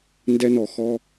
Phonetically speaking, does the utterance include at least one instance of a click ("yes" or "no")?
no